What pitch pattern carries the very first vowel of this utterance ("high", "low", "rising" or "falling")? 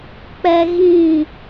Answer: high